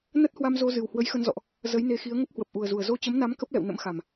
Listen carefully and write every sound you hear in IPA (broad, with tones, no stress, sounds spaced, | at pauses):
n ə˦˥ t̚ h w a˧ m z o˧ z ɨ˨˩ w h w ə˨˦ j x ə˧ n z ɔ̰˧˨ ʔ | z ə˨˦ j n e˨˦ x i˨˦ ə̯ ŋ ə˦˥ p̚ h w ə˨˩ p̚ ʔ u˨˩ ə̯ z u˨˩ ə̯ z o˧ t͡ɕ ə˨˦ m n a˨˦ m k ə˦˥ p̚ l ɛ̰˧˨ w n ə̰˧˥ m x a˨˩ m